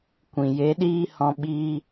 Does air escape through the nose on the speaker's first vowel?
yes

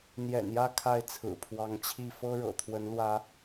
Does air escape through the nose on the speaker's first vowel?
no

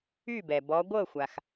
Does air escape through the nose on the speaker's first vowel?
no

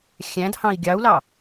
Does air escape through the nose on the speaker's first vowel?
yes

